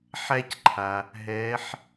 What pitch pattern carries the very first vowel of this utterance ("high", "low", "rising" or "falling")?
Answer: high